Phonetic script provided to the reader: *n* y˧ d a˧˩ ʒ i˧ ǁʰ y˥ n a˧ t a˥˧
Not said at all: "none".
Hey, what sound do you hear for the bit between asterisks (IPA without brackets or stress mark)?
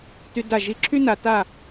t